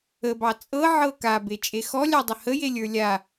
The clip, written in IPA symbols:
ə b ɑ t͡sʼ ɤ ʕ ɤ k a b e t͡ʃʼ e x ɔ lʲ ɑ dˤ ə h ə j e lʲ ə˞ lʲ a

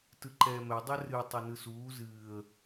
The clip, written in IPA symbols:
t ɯ ǃ ɛː m ɛ dˤ ɛ r ɨ tˤ y n ɯ s uː z ɨː ə̯

